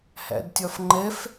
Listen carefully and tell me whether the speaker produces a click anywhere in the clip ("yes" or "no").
yes